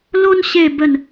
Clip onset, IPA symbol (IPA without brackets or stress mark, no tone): l